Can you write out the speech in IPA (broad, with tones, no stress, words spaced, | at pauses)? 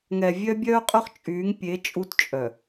ŋɛ˨vʲœ˦bʲœː˦qʼœ˦χ t͡ʃʼyː˨˦ŋ pʲe˨˦ t͡ʃʼu˦tt͡ʃʼœ˨